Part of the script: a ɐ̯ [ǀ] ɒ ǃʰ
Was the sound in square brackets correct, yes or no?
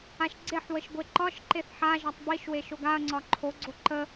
no